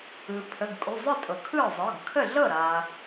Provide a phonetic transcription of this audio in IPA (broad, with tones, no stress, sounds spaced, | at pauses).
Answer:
ɯ˩ pʰ ə˩˧˩ ɡ kʼ u˩˧˩ zˤ ɯ˥˩ tʼ ɤ˩ kʰ ɯ˥˩ zˤ ɤ˩˧˩ ɡ kʰ ə˥˩ ɮ ɤ˥˩ ɾ a˩